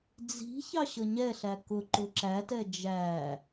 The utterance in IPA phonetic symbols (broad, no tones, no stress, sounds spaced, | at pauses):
d͡z i̤ ç ɑ ɕ ʌ ɲ ɛ ɬ æ k ʊ ǃ ʊ ǁ æ t ɛ d͡ʒ æ